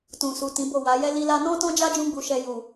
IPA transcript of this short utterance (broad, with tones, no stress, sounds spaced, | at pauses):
t ũ˨ s u˨ t ĩ˨˦ b o˦˨ w a˨˦ j ɛ˦ l i˦ l a˦ n ɔ̃˦ t ɔ̃˦ d͡ʒ a˦ d͡ʒ ũ˦ ɡ͡b u˧ ʃ ɛ˧ j u˨